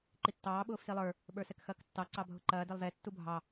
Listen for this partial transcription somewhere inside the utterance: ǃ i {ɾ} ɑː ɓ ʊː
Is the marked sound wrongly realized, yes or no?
yes